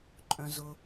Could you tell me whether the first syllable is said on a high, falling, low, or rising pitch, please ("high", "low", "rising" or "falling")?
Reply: high